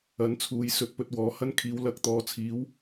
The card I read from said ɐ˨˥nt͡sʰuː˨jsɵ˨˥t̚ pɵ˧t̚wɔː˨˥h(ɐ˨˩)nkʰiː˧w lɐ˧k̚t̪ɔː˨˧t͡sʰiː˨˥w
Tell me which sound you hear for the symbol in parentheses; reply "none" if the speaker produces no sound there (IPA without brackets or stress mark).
ɐ˥